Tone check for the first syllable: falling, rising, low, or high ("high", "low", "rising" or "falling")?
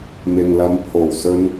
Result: low